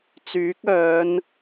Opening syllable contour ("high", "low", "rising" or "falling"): rising